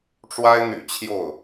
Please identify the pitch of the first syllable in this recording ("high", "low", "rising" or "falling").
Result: high